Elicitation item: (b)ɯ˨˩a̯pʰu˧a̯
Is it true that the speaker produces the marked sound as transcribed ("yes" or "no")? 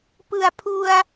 no